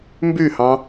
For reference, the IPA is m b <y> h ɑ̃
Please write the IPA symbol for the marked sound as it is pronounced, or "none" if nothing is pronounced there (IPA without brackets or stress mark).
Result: y